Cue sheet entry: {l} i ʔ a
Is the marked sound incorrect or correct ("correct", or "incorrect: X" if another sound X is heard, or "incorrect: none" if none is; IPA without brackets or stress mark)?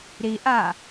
incorrect: ɾ